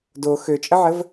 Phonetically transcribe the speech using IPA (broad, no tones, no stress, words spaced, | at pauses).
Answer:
do xøt͡ʃʼəʕəv